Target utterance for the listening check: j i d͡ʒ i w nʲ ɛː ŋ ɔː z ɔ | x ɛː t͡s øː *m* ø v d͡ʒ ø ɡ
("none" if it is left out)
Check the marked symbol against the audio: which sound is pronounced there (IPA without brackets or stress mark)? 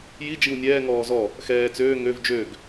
ŋ